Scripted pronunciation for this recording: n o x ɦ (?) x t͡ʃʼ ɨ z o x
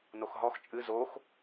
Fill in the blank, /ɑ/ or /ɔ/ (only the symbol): ɔ